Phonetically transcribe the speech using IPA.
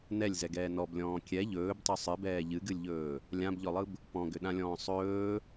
n ɛ lʲ z ɛ ɡ ɛː n ɔ b lʲ ɔ̃ː kʲ ɛ ʎ ɵː b tˤ ɵ sˤ ɨ b ɛː ʎ ɨ ɡ ɨ lʲ ʎ ɵː | lʲ ã b ʎ ɔ lˠ ɯ b | p ɔ̃ ɡ ʏ ɗ ã lʲ ɔ̃ː sˤ ɵː

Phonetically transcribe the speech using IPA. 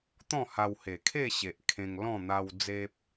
t̪ ɔ̃˥˧ h a˧ w h e˨˩ kʰ e˥˧ ɕ e˨ ʔ kʰ ẽ˧ ŋ l ɔ̃˥˧ n̪ a˧ w d͡z e˦ p̚

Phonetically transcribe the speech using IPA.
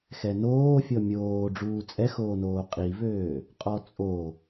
x ɛ n oː fʲ ɔ mʲ oː ɖ͡ʐ uː t͡sʼ ɛ x oː n oː qʼ i v øː | qʼ ɔ t͡sʼ o

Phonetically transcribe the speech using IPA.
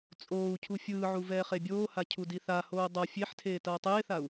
t͡sʼ oː u̯ cʰ u fʲ ɯː ʕ u v ɛː χ e bʲ oː h a cʰ u d i θ a h oː dˤ ʌ fʲ e ħ tʰ eː t ʌː tˤ eː θ a u̯

